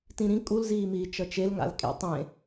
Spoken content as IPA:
t ĩ ɾ ĩ kʼ u l z iː m iː t͡ʃ ʌ t͡ʃ e l ŋ a̰ l kʼ ḛ tˤ ẽ

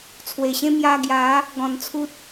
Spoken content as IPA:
t͡sʰ w e˨˩ ɕ ẽ˦ m j a˧ ɡ j a˨˦ | ɡ ɔ̃˨˩ n t͡sʰ u˦ t̚

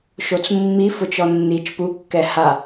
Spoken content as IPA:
ʃ o t͡s mː i f ʊ t͡ʃ ɔ nː i t͡ʃ p u kː ɛ h a

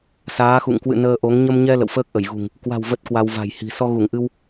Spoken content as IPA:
s aː˨˦ x ṵ˧˨ ŋ k w ɨ̰˧˨ n əː˧ ʔ o˨˦ ŋ ɲ ə˧ m ɲ ɛ˧ l ə̰˧˨ w f əː˦˥ k̚ ʔ ə˧˩ j ɣ ṳ˨˩ ŋ | k w a̤˨˩ w v ə˦˥ t̚ k w a˧ w v a̤˨˩ j h i̤˨˩ s ɔ˧ ɣ u˧˩ ŋ ʔ ɨ˧ w

